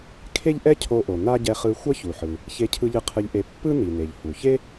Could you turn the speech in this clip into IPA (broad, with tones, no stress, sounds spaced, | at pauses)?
kʰ e˥ ʎ ʔ ɛ˥ cʰ o˧ ʔ o˩ n a˥ ɟ ɛ˧ χ ɯ˧ xʷ ʌ˥ ç u˩ ħ ɯ˩ | ç e˧ cʰ ɯ˧ ʎ ɯ˧ qʰ ɯ˧ ʎ ʔ e˧ pː ɯ˥ n i˩ n e˩ ʎ h u˩ ç e˥